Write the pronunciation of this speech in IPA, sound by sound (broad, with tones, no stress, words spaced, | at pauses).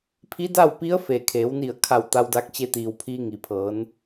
pʰi˧˥da˥˨wpi˧˥ə̯ fe˩kʰeː˩˧wni˧˩ə̯ kʰa˧˩wt̪a˧wda˧k̚ t͡ɕe˧t̪iː˩wpʰiː˧ ŋi˩pʰɤː˩˧n